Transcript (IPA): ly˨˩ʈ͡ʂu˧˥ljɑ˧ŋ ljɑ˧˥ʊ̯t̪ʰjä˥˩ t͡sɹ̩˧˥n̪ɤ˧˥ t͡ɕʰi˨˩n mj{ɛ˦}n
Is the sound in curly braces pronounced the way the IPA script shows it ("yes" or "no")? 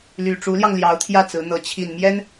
no